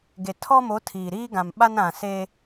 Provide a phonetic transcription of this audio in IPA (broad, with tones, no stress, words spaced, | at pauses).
ɡe˨tʰɔ˦mo˨˦ tʰiː˨ ɾiː˦ɡã˨mɓa˦n ã˨se˦